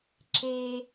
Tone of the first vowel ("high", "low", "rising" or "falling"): low